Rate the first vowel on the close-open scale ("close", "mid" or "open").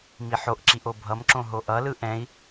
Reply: close